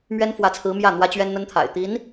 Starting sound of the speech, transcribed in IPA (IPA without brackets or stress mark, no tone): m